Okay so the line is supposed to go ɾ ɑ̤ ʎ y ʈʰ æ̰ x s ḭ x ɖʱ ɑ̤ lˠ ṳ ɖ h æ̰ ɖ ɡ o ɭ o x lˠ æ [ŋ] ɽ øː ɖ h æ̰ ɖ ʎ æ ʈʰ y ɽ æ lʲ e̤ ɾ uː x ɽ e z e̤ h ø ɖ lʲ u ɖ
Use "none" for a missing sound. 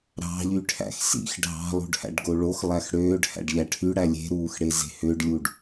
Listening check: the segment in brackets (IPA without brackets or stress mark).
x